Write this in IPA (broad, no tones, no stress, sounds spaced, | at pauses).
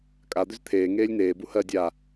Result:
kʼ a d̪ ʏ z t̪ʰ eː ŋ eː lʲ n eː b u h ɜ dʲ a